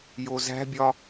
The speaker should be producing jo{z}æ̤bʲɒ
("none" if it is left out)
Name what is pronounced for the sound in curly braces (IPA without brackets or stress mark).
z